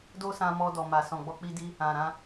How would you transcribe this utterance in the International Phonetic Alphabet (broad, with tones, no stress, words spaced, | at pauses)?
do˦sã˧mɔ˧ dɔ˨ma˨ sɔ̃˨ɡ͡bɔ˧k͡pi˧di˧ | ã˨ɾã˧